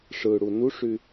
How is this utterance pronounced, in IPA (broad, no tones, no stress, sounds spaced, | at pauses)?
ʂ ɯ ɽ u n u ʂ y